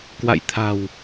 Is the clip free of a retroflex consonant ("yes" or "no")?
yes